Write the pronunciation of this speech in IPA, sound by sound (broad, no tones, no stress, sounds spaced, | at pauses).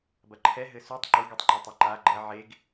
b ɐ ǃʰ ɛ ɦ ɘ s u tˤ ǃ u ɡ o tˤ ŋ͡ǃ u tˤ ɐ ǃ a ɡ͡ǃ ɐ ʕ e ɡ